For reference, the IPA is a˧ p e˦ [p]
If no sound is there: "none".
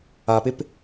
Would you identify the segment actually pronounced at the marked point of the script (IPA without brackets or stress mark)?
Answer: p